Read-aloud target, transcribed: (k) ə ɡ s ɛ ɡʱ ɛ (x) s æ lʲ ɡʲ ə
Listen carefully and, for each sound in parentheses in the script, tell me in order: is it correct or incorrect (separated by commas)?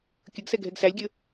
incorrect, incorrect